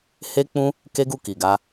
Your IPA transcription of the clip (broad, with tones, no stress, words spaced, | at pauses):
he˦k͡pũ˦ | ke˦ɡu˦˨ki˨ɡa˧